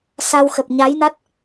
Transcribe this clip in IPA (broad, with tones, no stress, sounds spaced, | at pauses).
s a˧ w x ə˨˩ p̚ ɲ a˨˦ j n a˦˥ t̚